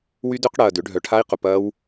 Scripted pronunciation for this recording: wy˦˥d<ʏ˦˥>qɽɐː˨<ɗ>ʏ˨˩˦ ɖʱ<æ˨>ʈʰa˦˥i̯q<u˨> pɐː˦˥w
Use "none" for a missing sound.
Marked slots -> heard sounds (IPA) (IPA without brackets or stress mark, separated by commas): ʏ˦˥, d, œ˨, ʊ˨